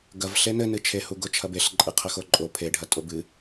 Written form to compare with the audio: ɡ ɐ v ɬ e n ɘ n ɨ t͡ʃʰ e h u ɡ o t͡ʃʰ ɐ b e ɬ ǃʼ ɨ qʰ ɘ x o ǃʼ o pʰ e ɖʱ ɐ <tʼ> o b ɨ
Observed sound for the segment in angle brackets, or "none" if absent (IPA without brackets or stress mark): tʼ